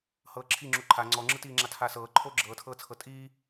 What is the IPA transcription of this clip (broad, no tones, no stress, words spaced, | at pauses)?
hɤːǁʰi ŋ͡ǁuǃʰa ŋ͡ǀɔŋ͡ǁɯtiːŋ͡ǁa tʰasɤː ǃʰoːɡ͡ǁɤːtʰɤːt͡sʰɤ tʼiː